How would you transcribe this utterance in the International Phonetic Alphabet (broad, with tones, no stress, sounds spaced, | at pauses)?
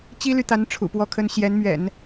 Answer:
t͡ɕ i˥ l y˨ t̪ a˧˥ n ʈ͡ʂʰ ṵ˨˩ p w ɔ˥ kʰ ə˥ n ɕ j ɛ˧˥ n m ɥ ɛ̰˨˩˦ n